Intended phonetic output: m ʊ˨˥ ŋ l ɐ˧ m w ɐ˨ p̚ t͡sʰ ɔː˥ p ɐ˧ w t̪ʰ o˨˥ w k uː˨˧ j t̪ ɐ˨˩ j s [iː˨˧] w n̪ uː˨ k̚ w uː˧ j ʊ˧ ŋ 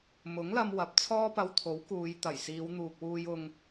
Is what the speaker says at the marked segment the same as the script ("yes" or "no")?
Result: yes